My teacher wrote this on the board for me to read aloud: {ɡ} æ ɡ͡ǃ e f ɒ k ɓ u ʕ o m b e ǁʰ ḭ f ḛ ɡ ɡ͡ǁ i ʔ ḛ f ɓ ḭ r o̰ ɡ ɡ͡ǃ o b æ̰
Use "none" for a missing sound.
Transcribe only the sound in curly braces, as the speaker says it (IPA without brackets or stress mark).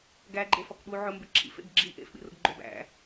ɡ